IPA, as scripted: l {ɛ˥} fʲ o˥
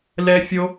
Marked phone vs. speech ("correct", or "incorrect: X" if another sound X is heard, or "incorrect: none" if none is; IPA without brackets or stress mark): correct